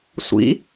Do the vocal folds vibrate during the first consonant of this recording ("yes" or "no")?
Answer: no